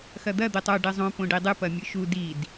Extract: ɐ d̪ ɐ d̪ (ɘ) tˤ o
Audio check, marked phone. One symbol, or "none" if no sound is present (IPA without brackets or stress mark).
ɘ